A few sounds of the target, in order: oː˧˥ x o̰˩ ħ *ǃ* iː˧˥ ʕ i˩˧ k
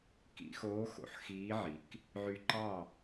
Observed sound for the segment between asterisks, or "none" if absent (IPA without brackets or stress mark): x